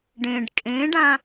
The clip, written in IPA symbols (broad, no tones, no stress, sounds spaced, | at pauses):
ɖ ẽ ɖ kʼ ẽ ɖ ã